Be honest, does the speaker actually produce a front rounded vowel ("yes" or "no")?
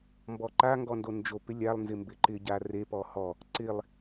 no